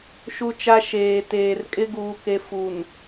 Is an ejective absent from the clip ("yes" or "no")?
no